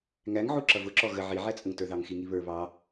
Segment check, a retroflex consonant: absent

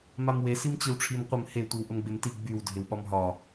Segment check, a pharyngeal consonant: absent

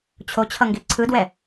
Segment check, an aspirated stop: present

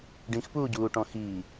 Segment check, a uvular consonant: absent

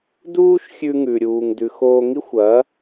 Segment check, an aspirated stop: absent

